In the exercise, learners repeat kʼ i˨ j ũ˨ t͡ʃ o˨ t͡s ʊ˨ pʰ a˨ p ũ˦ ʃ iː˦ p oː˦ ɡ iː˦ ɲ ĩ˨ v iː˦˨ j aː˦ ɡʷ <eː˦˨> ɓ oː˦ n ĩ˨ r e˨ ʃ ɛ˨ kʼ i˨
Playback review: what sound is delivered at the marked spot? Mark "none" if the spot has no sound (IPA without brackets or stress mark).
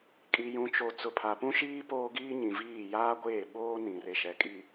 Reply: eː˦˨